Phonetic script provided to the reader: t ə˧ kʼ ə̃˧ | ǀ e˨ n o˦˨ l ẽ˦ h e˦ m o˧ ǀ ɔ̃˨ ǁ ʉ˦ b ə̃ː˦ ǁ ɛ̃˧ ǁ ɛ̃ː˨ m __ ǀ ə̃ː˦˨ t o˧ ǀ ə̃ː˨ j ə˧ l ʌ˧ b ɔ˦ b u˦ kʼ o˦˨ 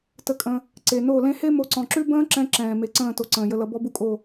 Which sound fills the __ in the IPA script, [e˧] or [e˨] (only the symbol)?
e˨